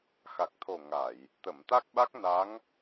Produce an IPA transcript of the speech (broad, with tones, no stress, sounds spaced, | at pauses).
x a˨˩ k̚ t̪ʰ o˨˩ ŋ a˨˩˨ j | t̪ ə˨˩˨ m t̪ a˦˥ k̚ ɓ a˦˥ k̚ n a˧˥ ŋ